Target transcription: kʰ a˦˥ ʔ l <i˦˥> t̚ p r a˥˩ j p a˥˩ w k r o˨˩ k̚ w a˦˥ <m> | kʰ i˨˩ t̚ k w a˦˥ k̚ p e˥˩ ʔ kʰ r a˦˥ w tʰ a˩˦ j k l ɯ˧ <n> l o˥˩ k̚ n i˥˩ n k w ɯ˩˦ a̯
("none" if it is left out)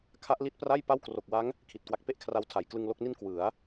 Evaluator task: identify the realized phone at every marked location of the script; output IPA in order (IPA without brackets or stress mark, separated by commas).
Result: i˦˥, ŋ, ŋ